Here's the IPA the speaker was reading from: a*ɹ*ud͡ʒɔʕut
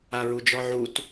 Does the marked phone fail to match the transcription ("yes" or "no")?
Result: no